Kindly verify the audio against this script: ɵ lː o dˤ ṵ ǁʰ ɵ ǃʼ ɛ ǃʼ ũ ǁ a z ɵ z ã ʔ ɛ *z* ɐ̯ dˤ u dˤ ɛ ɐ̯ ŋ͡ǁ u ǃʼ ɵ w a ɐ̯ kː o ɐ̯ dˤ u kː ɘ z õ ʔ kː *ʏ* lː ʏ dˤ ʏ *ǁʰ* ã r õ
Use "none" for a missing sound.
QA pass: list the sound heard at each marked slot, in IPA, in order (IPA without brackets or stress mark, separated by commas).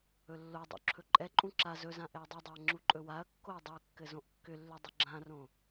none, ʏ, ɡ͡ǁ